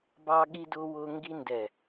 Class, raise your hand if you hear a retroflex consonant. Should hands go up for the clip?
no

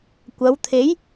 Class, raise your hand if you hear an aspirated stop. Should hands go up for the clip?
yes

